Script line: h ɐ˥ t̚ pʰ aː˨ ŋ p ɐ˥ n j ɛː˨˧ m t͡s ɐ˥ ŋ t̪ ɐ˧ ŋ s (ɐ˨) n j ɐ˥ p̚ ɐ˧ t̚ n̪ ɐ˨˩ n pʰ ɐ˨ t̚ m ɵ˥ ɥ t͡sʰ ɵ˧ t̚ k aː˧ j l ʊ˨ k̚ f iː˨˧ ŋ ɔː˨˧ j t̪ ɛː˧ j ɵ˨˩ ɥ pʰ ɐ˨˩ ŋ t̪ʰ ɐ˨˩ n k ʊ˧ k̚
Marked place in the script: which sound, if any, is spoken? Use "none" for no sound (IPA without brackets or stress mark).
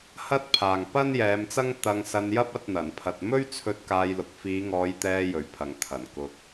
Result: ɐ˧